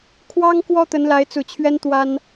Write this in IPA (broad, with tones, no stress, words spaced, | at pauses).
kʰwɑ˥ŋkwɔ˥ t̪ə˧˥nla˧˥ɪ̯t͡su˨˩t͡ɕʰɥɛ˥n t̪wa˥n